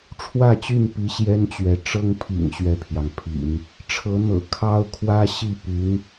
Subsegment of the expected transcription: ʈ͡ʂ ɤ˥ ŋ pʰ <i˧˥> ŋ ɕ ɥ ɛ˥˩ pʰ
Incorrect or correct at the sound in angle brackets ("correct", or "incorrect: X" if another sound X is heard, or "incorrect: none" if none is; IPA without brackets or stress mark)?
incorrect: ḭ˨˩